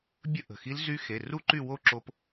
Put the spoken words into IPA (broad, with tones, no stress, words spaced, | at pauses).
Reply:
bʲə˦˥ ʔə̤˩˧˩xi˦˥lzy˦˥ xe˩˧˩ ru˥˧ǃy˥˧ wo˥˧ ǁo˦˥p